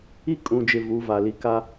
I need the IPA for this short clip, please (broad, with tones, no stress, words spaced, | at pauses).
i˦ kʼũ˨d͡ʒɪ˨ vu˨˦va˨ li˨ka˦